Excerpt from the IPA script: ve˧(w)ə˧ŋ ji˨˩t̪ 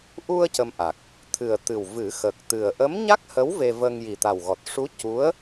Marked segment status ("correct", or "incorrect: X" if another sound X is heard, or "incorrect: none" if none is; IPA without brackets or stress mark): incorrect: v